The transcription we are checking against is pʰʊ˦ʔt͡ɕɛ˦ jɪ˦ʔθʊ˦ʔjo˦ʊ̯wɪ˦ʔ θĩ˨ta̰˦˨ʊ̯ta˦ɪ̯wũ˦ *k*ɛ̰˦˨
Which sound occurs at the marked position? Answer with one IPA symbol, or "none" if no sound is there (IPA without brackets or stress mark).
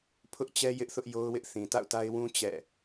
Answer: t͡ɕ